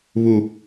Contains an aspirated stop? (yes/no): no